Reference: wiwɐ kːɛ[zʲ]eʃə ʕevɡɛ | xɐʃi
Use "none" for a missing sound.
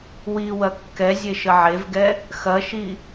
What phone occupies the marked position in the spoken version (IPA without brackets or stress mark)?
zʲ